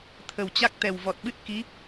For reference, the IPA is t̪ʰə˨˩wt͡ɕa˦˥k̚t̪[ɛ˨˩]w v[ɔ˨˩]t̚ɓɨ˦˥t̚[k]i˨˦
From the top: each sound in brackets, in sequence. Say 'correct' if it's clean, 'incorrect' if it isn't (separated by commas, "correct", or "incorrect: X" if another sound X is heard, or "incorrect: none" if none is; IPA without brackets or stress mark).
correct, correct, correct